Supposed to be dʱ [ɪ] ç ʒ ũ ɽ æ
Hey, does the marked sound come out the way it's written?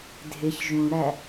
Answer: yes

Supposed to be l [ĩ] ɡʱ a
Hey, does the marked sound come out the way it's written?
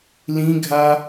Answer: yes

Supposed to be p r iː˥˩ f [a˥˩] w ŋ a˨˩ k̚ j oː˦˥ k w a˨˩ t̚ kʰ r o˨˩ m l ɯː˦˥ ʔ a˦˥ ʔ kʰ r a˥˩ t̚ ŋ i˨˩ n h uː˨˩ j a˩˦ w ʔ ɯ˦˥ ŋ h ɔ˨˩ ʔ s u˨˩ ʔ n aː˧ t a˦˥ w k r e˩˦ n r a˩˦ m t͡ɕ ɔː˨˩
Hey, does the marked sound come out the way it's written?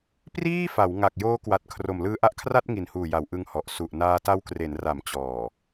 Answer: no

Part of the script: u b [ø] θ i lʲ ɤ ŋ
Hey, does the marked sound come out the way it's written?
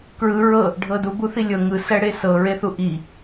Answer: no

